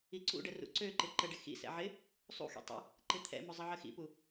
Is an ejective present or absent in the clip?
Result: absent